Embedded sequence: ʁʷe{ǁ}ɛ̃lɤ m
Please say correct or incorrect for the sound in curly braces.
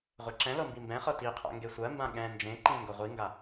correct